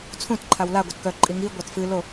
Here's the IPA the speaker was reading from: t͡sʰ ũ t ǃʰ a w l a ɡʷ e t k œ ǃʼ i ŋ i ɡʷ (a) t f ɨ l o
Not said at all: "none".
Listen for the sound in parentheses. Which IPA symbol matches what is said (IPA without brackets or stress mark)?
a